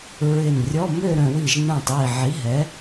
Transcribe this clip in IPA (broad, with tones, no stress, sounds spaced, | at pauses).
ɹ ɪ˧˩ n rʲ ɔ˧˥˧ m ø˥˧ ɾ œ̃˧ w i˧˩ ʒ n œ̃˧˩ tˤ i˧˩ ʕ i˨˥ ɦ ɛ˨˥